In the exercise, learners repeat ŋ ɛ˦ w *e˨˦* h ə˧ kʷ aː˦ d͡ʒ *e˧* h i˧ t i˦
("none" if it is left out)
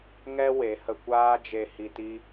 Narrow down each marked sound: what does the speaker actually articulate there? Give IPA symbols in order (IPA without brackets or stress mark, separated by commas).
e˨˦, e˧